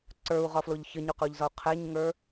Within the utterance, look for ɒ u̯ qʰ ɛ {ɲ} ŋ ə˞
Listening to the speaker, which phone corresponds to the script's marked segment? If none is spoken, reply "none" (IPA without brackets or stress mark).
ɲ